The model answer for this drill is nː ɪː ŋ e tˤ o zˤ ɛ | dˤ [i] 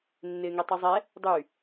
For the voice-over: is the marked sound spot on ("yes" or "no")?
no